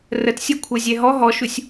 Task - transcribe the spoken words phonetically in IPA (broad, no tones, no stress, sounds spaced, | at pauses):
r ə t sʲ ɤ kʷʰ ɤ zʲ ɛ ɦ ɔ ɦ ɔ ʃ u sʲ